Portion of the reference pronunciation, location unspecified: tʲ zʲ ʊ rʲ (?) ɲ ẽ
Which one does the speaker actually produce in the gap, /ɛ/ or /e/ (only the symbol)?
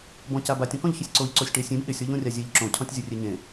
e